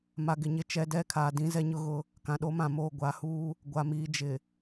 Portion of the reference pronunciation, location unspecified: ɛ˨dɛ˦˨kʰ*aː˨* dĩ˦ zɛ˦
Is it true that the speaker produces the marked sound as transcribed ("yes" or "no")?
yes